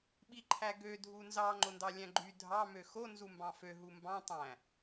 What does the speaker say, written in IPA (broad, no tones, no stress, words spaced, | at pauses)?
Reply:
ɓiǃʰæɡø dʱunzɑ ŋ͡ǃondɑlʲæ̃ɡ͡ǃy dʱɑ møxo nzumbɑ̃fø ɦumbɑ̃ tˤæ̃